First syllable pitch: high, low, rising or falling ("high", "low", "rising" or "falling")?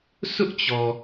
high